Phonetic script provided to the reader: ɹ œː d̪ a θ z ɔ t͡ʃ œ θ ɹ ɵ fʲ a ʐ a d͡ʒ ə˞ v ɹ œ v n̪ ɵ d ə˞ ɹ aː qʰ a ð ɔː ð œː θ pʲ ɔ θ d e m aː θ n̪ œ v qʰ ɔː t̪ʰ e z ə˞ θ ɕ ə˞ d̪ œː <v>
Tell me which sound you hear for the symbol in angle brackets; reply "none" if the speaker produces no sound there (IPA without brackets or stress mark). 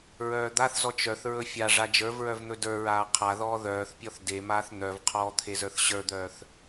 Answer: θ